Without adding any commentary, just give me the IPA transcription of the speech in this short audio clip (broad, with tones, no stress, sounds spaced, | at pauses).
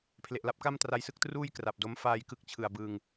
pʰ l e˨˩ ʔ l a˦˥ p̚ k a˥˩ m t r a˧ j s ɯ˥˩ k̚ t r uː˥˩ j k r a˨˩ p̚ d o˦˥ m f aː˧ j k ɯ˦˥ k̚ t͡ɕʰ ɯ˨˩ a̯ b ɯː˧ ŋ